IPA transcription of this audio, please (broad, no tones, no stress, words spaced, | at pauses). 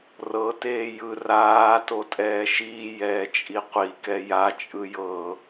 rɤ teːjɯ raː totʼɛːʃiː jɛːt͡ʃʼiqʷi kɛja t͡ʃʼɯjɤ